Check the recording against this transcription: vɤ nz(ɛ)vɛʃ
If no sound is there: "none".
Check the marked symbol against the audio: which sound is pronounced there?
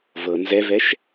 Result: ɛ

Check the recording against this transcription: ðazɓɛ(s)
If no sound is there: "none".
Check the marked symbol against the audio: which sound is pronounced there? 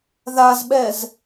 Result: z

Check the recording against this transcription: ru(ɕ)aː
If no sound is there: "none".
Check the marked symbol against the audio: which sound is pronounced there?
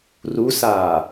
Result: s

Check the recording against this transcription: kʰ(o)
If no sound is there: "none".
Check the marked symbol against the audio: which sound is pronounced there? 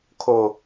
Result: o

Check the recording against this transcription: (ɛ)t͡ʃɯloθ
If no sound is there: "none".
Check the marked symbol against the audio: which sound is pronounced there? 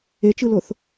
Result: e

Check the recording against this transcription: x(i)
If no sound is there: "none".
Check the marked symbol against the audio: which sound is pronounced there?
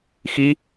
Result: i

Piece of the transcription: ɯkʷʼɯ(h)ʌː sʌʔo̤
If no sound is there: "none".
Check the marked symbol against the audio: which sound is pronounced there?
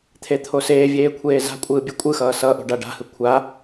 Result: x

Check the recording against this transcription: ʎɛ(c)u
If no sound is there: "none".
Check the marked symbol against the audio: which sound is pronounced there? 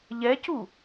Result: c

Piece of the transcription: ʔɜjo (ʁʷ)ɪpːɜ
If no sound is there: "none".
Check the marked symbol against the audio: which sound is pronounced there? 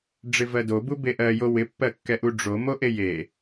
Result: w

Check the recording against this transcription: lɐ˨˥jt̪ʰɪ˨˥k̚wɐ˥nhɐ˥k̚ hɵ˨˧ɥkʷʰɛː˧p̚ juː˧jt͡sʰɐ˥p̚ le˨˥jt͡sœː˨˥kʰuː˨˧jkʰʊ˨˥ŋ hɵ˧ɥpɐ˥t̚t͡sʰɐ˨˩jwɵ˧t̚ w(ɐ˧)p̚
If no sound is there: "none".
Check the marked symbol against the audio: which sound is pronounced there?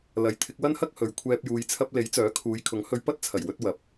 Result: ɐ˨˥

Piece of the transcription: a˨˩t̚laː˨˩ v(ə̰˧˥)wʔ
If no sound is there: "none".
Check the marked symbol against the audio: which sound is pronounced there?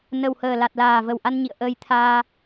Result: ə˨˩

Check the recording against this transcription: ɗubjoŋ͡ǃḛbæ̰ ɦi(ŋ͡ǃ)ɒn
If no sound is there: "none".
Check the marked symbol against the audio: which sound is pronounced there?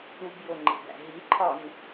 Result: ǃʰ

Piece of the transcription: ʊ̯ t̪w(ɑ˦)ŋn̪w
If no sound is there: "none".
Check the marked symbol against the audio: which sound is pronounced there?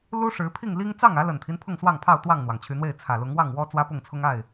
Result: ɑ˥˨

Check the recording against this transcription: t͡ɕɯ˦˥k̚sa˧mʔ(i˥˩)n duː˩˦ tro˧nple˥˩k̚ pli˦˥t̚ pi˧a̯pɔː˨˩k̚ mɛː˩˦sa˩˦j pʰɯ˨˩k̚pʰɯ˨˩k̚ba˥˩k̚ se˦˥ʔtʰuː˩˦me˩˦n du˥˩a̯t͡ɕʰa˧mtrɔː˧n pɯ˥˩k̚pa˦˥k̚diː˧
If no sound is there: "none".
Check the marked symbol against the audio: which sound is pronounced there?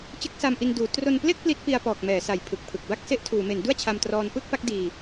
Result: i˧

